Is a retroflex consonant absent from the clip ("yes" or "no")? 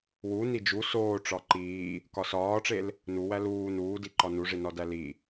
no